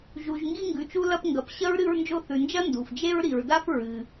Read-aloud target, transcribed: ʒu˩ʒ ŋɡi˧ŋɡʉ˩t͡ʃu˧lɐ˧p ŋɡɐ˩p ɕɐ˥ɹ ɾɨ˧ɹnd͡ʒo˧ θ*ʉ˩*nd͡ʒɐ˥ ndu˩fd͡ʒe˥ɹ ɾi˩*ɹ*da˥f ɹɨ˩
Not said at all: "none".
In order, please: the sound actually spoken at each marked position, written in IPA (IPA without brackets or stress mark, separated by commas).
ʉ˩, ɹ